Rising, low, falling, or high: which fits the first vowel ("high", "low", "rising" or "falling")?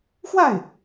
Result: falling